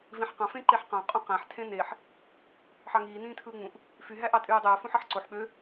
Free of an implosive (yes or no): no